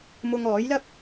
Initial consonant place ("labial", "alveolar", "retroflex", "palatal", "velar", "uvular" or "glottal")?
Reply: labial